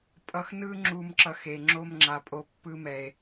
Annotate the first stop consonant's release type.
ejective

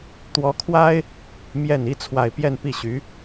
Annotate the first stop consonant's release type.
plain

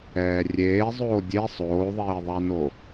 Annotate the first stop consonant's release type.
plain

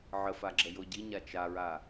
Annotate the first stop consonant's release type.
click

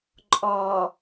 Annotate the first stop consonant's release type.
click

